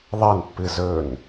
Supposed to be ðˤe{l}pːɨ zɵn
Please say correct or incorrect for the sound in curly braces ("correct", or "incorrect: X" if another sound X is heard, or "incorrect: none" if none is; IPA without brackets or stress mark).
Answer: incorrect: n